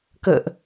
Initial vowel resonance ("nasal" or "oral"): oral